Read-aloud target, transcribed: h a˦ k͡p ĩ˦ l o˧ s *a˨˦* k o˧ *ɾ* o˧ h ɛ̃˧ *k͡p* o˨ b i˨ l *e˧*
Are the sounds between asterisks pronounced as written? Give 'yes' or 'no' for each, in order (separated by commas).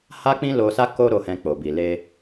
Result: no, yes, yes, yes